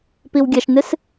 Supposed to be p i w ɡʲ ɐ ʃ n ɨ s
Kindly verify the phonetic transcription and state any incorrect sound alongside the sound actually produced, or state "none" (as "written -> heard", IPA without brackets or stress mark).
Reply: none